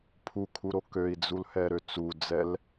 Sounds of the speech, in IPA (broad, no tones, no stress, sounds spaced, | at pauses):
pʰ u kʰ u ɾ o k ø i̯ d͡z u l h ɛ ɾ ø t͡s u d͡z ɛ l